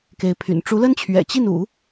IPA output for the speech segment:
k e˧˥ ɪ̯ pʰ y̰˨˩ n ʈ͡ʂ u˧˥ l ə˥ n t͡ɕʰ ɥ ɛ̰˨˩ t͡ɕ i˥˩ n ṵ˨˩˦

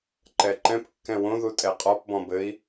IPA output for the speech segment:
ǃ ɛ ǃ ɛ̃ p kː ɛ̃ w õ ð u tʼ ɛ qʼ ɔ p b ɔ̃ b ɘ i̯

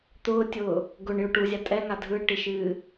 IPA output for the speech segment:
t̪ ʊː tʲ ʊː | ɡ ʊ ɳ j ʊ ʈ u zʲ a tʼ ɛ ŋ a dʱ ɯ ʈ i ʃ ɨː

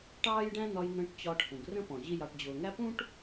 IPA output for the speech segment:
ʈ ɑː˦ j ɖ æ̃˦ n̪ ɒ˧ j n̪ ə̃ː˧ ʈ t͡ɕ ɒ˧ ʈ h ũ˨ ɡ r ə̃˦ p ɔ̃˨ ʑ i˦ j ɑ˧ ʈ d͡ʑ ʊː˨ ŋ æ˦ p ũ˦ ʈ

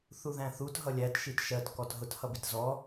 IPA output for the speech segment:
θ u ð æ̃ θ u t ɦ ʌ lʲ æ t ʃ i t ʃ ɜ t k ɔ t ɦ ʊ t h ʌ b i t z ɔ

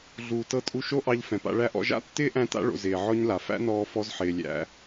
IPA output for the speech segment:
ɮ uː˨ t ɤ˧ tʼ u˧ ʃ o˦ ʔ ɑ˧ ʎ f ɛ̃˨ p a̰˧ ɭ æ˦ ʔ ɔ̰˧ ʒ a̰˦ tː ɪː˦ ʔ æ̃˧ t a̰˧ ɭ o̰˨ z ɪː˨ ʕ ɔ˧ ɲ l a˨ f æ̰˦ n ɔː˧ f ɔ˧ z ħ ɪː˨ lʲ æ̰˧

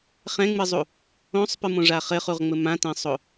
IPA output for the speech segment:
χ ɛ̃ ŋ͡m ɨ zˤ u | õ sˤ p ɨ m õ ʐ a χ ɘ χ u ʁ ŋ͡m ɘ m ã t ɛ̃ sˤ o

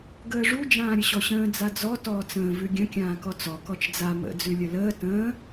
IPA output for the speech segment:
ɡ əː ʐ u d͡ʒ ãː ɾʲ ə ɕ ɔ ɕ ə̃ː d͡z a d͡z ɔ t ɔː t͡s ə̃ː v ʉ ɡʲ ə̃ kʲ ãː k ɔ t͡s ɔ k ɔ t͡ʃ d͡z a m ə̰ d͡z ʉ lʲ ə l əː t ə̃ː

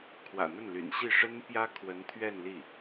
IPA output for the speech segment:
kʰ w ä̰˨˩ n̪ ə˥˩ n l y̰˨˩ n ɕ i˥˩ ʂ ə˥ n p j ä˥ kʰ w ə˧˥ n t̪ʰ ɥ ɛ˥˧ n l i˥˩

